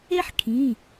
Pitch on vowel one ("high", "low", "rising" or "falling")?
high